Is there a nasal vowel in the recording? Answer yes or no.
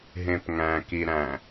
yes